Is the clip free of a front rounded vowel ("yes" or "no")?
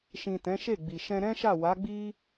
yes